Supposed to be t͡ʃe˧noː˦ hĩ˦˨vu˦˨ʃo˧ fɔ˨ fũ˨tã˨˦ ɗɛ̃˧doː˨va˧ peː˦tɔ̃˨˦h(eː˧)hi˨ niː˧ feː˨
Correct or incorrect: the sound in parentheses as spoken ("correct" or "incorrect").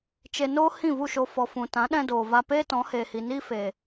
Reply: incorrect